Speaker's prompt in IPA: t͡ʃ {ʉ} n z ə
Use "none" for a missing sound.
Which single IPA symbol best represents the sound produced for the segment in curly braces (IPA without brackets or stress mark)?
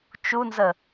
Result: u